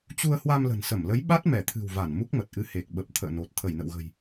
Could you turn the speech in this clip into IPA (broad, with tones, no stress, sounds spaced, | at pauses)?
t͡ɕ u˧ ə̯ h w a˧ m l ə̤˨˩ n s ə˧˩ m l ə˨˦ j ɓ a˦˥ t̚ m ɛ˧˩ t̪ʰ ɨ̤˨˩ w v a˧˩ n m u˦˥ k̚ m ə˨˩ t̚ ʔ ɨ˧ h e˨˩ k̚ ɓ ə˨˩ p̚ t̪ʰ ə̰ː˧˨ n o˨˩ t̚ t̪ʰ ə˧˩ j n ə̰˧˨ w ɣ ə̤˨˩ j